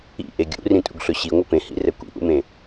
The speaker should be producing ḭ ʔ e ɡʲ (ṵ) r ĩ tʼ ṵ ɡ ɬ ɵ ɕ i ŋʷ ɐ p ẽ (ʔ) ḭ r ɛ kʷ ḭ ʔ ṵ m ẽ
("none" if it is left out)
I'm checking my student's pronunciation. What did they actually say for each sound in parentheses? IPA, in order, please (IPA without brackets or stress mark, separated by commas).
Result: ṵ, h